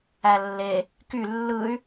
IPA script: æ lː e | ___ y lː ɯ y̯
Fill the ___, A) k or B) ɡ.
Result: A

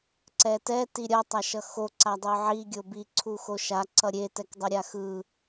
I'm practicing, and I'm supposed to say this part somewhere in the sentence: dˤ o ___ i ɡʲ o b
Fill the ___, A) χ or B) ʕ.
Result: B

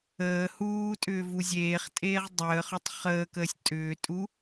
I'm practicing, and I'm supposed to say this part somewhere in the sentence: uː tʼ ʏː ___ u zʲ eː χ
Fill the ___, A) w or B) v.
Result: B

